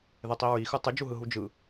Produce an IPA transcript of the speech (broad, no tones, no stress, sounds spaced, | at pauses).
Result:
ð e tˤ i ɹ i x ɯ tˤ ɨ d͡ʒ u ɦ ɯ ɦ u d͡ʒ ɯ